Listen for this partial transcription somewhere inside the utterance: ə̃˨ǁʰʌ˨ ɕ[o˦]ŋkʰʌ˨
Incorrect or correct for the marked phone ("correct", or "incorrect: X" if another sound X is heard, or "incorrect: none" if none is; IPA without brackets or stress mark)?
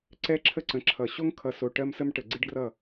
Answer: correct